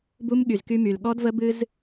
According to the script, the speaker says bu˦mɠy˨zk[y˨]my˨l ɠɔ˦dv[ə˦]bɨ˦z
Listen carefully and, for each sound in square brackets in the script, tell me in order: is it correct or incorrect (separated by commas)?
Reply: incorrect, correct